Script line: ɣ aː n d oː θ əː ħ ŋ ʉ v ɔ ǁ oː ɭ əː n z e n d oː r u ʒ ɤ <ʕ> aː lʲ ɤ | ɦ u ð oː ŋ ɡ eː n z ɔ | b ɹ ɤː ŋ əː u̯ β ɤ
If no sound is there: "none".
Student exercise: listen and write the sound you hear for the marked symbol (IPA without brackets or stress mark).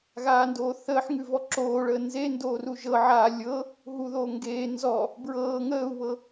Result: ʕ